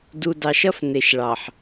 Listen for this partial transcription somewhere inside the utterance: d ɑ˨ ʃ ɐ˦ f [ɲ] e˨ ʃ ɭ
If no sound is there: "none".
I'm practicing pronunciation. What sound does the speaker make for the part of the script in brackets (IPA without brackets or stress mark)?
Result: n